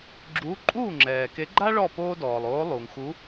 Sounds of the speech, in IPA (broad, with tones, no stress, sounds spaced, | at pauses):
ɡ͡ǁ uː˧˥ ǃʼ uː˥˨ ŋ͡ǁ ɛː˨ k e˧˥ ɡ͡ǃ a˥ ɭ ɔ˥˨ p oː˥ d ɔː˨ lˠ oː˧˥ lˠ uː˨ ŋ x u˧˥